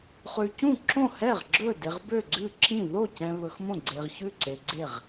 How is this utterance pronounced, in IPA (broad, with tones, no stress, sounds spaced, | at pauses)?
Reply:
χ ʉ˨ c ũ˥˩ ǁ õ˥˩ h ɛ˥˩ ʁ ɡ͡ǁ ɵ˥˩ d e˨ ʁ b ø˥˩ ɡ͡ǀ ʉ˥˩ ǁ ĩ˥˩ ð o˥˩ c ɛ̃˨ β ɵ˨ x m õ˥˩ ɡ͡ǀ e˨ ʁ ç ʉ˥˩ ǀ e˨ ɡ͡ǀ e˥˩ ʁ